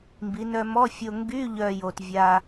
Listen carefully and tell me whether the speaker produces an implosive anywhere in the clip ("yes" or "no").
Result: no